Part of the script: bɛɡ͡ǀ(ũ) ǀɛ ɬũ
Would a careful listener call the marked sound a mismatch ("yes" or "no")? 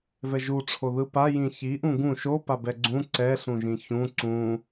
no